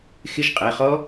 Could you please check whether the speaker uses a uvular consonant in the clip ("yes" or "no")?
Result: yes